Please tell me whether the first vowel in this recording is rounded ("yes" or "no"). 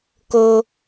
yes